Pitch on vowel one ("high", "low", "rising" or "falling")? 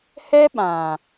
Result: high